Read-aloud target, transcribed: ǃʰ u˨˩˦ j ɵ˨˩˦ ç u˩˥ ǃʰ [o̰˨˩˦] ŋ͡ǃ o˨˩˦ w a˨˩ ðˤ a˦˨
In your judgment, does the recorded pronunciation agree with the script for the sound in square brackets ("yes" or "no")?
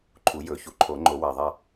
no